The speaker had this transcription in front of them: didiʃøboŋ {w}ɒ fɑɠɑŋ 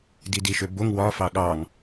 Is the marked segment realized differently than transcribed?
no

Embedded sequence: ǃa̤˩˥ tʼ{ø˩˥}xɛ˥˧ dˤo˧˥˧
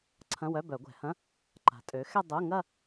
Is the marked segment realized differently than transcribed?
no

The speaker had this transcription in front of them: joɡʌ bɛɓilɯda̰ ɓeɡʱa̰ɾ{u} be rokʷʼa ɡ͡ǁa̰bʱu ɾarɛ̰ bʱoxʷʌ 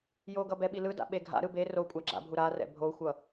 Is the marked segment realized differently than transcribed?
yes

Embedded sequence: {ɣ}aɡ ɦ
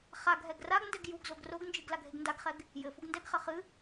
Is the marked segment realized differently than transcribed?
yes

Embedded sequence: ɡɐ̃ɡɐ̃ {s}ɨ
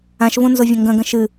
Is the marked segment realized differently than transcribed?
yes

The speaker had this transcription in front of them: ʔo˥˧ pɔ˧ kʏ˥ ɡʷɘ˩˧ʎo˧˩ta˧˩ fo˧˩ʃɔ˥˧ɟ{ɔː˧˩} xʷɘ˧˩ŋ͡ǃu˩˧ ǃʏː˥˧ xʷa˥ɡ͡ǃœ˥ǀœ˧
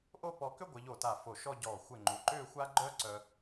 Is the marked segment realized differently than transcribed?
no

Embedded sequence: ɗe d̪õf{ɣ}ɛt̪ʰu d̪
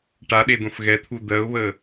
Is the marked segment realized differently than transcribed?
no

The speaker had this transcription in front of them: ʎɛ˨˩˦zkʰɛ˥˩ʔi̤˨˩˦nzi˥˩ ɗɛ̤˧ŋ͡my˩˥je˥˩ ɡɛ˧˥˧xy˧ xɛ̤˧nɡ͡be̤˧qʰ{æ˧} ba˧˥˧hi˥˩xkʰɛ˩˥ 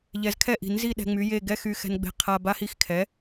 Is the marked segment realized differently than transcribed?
yes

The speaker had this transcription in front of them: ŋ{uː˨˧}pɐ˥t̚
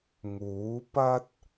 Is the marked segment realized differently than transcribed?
yes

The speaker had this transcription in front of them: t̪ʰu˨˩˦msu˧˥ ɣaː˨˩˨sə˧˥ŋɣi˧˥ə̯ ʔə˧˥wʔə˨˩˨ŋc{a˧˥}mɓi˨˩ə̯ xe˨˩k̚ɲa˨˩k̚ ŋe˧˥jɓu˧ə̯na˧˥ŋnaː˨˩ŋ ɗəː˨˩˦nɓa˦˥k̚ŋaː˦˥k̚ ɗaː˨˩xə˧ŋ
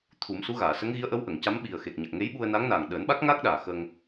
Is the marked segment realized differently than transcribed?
no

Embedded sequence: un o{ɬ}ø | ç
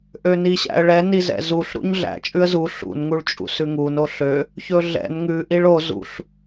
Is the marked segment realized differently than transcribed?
no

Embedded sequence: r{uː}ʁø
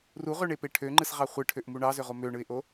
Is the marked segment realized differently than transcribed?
yes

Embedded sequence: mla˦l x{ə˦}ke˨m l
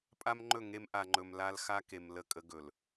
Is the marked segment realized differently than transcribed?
yes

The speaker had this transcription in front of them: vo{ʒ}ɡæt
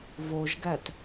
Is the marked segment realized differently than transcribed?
no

